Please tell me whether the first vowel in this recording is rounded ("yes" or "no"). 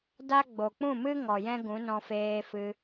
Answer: no